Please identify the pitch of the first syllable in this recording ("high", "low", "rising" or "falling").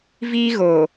high